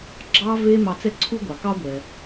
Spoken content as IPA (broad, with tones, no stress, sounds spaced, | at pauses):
ɡ͡ǁ ɑ˧ v e˧ m ɑ˧ t͡s ɛ˥ ǀʰ u˥ ɡʷ ɑ˩ k ɑ˥ ɡʷ ɛ˩